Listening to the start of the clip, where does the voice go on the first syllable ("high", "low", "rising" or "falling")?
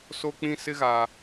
high